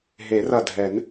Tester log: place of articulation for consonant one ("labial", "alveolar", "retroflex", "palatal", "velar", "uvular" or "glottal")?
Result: glottal